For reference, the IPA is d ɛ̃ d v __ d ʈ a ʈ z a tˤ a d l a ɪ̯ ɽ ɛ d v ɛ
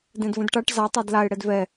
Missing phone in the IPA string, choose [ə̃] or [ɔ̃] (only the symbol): ə̃